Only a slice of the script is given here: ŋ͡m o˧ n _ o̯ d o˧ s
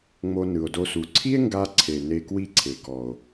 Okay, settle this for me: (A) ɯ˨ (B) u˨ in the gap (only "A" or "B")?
A